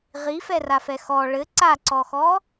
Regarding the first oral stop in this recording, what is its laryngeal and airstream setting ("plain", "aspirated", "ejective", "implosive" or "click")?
click